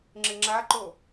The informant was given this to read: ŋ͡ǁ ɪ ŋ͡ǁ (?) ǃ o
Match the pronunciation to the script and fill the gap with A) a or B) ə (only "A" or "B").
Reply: A